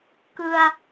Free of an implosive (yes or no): yes